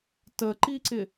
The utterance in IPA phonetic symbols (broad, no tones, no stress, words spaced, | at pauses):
təǃiǀɪ